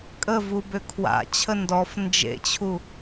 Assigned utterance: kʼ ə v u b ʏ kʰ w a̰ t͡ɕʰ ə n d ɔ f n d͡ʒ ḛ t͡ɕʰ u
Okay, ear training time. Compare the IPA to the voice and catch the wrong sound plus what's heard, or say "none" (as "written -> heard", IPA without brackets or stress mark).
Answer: none